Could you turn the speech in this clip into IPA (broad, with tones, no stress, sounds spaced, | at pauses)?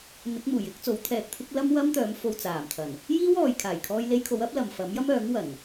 n̪ ɪ˨˥ k̚ m uː˨˩ j ɪ˨˥ k̚ t͡s o˨˥ w t̪ʰ ɛː˧ k̚ t̪ʰ ɪ˥ k̚ l ɐ˥ m w ɐ˥ m t̪ œː˨˧ m f o˧ w t͡s aː˨˩ m t̪ʰ ɐ˨˩ n | j iː˥ w ɔː˨ j kʰ aː˨˩ j kʰ ɔː˧ j l e˧ j kʰ o˨˧ w ɐ˥ p̚ l ɐ˨ m f ɐ˨˥ m j ɐ˥ m œː˨˥ ŋ w ɐ˨˩ n